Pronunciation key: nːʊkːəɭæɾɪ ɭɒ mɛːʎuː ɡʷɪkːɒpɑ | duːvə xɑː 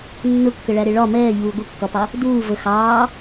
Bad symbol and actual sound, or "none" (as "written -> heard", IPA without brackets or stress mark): none